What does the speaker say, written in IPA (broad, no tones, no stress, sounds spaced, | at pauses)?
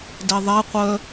d ɛ ðˤ ɛ qʷ œ